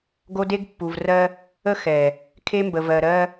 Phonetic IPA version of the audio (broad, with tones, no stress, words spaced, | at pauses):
ɡo˦de˦ɡpːu˨vrɜ˦ | ə˦ xɛ˨ | kʰe˦mbə˨vɜ˨ ɾɜ˦